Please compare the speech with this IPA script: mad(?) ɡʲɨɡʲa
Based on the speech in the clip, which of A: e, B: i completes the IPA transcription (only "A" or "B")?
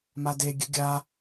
A